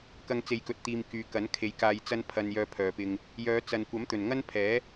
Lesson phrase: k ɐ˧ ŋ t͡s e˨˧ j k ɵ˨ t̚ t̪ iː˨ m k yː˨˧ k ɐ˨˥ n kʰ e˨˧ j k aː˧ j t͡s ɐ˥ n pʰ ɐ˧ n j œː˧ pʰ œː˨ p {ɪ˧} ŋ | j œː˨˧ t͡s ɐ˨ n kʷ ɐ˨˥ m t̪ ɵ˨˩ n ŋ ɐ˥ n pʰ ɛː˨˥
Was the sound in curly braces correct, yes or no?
yes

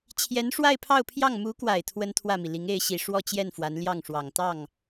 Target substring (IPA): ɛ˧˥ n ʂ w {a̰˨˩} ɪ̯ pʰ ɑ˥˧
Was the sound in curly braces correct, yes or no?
no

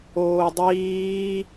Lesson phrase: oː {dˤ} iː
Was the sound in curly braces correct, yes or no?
yes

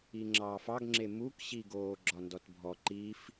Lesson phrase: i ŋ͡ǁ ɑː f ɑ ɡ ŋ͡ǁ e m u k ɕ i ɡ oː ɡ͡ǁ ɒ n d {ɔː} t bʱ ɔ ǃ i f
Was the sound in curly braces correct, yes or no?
no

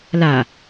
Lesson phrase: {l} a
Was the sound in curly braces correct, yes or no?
yes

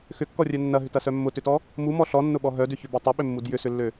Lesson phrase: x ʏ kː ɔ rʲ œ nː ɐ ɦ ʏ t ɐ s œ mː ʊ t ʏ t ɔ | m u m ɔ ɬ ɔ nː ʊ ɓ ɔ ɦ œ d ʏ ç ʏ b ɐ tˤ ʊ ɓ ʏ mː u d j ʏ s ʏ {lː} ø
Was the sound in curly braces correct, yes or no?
yes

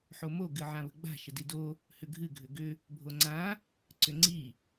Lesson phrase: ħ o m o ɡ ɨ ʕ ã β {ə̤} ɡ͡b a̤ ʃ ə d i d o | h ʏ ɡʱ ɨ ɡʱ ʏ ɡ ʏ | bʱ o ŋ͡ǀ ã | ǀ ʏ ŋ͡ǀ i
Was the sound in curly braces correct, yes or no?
yes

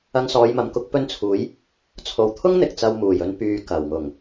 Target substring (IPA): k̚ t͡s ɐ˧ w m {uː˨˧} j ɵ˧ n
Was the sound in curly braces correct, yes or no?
no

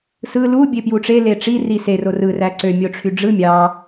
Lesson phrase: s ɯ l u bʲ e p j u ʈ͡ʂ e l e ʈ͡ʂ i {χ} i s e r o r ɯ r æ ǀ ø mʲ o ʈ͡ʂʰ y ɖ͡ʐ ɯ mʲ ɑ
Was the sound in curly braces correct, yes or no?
no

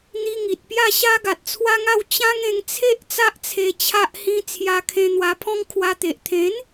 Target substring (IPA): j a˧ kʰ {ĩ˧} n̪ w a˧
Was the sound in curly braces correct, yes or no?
no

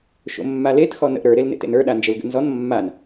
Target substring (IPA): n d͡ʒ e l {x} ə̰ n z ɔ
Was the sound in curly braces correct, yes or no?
no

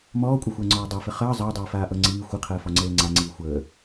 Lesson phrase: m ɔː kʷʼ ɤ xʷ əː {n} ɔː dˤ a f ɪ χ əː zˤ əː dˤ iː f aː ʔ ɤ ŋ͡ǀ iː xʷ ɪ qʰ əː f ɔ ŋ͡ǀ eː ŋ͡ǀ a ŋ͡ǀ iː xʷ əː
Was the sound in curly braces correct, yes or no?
no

